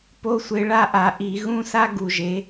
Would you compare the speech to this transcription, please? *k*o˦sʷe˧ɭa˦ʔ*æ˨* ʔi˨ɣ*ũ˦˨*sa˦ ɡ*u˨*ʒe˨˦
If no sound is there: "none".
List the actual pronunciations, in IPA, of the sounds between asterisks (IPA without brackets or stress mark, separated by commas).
p, a˨, ũ˦, u˨